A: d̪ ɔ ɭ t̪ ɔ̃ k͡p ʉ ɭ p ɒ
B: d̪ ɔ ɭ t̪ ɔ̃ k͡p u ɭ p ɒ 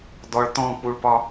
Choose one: B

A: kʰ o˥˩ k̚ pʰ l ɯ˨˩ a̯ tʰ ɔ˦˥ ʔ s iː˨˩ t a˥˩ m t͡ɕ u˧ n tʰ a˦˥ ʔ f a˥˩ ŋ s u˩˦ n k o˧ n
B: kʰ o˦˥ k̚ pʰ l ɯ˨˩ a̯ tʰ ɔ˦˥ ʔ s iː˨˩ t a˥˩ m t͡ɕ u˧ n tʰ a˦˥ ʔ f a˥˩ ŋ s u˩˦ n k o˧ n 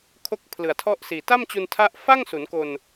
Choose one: B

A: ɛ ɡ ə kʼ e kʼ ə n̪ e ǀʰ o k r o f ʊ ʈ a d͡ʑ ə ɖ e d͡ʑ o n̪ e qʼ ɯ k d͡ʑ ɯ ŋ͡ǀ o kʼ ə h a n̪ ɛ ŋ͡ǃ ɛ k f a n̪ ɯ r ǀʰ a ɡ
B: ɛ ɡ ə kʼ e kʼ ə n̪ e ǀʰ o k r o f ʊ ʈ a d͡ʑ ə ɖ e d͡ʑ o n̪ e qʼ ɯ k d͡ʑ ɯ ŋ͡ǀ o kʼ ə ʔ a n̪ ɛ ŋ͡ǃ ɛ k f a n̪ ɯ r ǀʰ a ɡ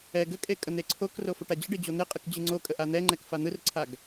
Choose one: B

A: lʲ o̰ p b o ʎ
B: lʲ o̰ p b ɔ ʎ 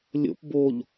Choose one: A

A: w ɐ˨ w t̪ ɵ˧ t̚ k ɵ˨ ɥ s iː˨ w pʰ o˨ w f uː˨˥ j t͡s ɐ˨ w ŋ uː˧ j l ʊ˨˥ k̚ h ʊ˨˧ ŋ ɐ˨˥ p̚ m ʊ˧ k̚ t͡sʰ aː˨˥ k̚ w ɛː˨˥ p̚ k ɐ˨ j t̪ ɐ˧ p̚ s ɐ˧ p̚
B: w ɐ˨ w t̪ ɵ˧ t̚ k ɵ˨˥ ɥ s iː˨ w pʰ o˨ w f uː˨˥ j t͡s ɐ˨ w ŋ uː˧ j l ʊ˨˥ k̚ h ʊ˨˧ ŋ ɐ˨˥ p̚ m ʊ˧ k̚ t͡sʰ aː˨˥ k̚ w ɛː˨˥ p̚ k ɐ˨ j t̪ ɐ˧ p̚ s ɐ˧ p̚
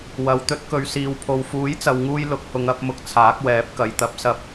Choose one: A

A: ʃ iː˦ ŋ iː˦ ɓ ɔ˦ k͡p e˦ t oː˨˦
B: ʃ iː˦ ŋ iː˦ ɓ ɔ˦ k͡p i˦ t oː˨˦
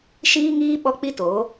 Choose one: B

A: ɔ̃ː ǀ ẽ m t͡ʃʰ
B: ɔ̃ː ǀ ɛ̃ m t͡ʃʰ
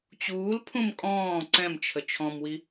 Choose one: B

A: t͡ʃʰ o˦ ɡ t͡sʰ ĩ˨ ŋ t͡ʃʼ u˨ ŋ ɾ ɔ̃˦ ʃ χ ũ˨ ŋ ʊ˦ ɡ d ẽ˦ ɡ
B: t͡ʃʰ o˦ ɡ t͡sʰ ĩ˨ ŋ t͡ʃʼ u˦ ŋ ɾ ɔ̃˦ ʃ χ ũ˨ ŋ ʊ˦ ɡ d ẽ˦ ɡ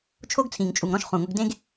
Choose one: A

